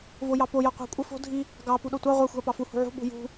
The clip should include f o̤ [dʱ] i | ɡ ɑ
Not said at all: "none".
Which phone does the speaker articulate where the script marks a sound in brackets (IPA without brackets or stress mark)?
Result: dʱ